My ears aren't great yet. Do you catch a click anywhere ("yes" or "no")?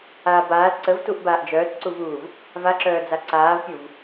yes